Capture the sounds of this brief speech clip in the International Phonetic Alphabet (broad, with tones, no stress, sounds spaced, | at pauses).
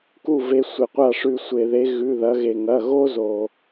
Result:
k u˧˩ v e˩˧ sʷ e˩ qʷ a˧˩ ʂ ʉ˩ sʷ e˩ ð e˩˧ ɣ ʉ˩˧˩ ð ɐ˩˧ ɣ e˩ ŋ ɐ˩˧˩ ɣ o˥ z o˩